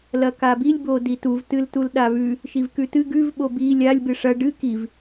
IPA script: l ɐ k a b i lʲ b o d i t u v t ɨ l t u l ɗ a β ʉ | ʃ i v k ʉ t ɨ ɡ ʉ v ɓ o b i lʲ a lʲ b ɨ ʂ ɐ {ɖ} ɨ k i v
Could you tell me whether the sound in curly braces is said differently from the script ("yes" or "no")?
no